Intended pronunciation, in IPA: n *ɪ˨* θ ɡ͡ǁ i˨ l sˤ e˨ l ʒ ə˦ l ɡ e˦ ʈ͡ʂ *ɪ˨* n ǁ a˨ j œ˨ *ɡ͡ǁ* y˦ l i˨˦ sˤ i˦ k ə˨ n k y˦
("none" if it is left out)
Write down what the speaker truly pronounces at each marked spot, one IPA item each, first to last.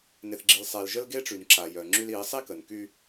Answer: ɪ˨, y˨, ŋ͡ǁ

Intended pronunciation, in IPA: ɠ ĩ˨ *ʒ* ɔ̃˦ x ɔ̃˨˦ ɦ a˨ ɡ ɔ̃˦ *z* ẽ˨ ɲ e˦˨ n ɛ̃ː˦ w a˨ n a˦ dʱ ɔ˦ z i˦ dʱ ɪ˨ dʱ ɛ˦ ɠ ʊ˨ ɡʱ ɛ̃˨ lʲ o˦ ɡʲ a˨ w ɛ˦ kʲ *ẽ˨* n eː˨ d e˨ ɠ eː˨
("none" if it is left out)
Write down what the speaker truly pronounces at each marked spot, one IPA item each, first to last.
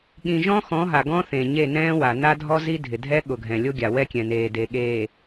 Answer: ʒ, θ, ɛ̃˨

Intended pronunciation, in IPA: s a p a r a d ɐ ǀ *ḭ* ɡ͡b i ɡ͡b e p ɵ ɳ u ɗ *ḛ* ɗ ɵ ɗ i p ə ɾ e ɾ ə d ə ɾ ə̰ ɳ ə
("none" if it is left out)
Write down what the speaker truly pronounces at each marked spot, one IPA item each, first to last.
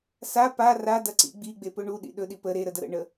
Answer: ḭ, ḭ

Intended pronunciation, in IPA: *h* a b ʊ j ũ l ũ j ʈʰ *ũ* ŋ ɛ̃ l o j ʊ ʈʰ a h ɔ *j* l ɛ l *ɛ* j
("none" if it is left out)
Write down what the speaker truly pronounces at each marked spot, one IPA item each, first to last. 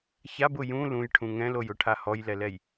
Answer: ç, ũ, j, ɛ

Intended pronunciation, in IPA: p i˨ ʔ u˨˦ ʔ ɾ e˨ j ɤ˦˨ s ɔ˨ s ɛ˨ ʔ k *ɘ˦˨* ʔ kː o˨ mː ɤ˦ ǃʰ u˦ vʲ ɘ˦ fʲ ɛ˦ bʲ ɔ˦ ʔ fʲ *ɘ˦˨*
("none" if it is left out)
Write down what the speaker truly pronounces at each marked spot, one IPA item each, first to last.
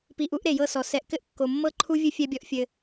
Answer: ɘ˦, ɘ˦

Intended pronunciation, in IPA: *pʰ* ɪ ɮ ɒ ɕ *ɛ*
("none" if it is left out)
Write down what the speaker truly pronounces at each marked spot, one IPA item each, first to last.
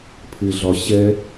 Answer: pʰ, ɛ

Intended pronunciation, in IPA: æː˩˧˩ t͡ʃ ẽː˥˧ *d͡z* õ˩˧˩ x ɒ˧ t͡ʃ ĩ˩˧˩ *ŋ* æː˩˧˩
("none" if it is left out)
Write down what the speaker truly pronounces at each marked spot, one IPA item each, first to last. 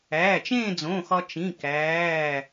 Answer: d͡z, k

